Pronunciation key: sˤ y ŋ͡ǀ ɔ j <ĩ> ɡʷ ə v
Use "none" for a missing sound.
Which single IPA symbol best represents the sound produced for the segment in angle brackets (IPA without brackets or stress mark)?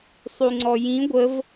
ĩ